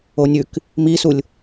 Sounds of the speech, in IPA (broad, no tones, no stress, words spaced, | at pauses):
onʲʉk | misulʲ